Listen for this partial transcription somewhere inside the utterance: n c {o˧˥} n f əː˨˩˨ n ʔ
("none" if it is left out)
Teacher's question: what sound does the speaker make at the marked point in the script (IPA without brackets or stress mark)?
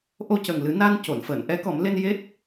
o˨˩˨